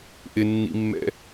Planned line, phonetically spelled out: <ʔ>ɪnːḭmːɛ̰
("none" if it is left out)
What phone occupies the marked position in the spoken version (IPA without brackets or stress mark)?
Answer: ʔ